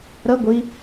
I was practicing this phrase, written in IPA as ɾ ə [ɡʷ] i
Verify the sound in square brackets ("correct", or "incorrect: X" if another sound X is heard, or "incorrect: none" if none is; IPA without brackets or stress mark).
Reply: correct